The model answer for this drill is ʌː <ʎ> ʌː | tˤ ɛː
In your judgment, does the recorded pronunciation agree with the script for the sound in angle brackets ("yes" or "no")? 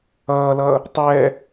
no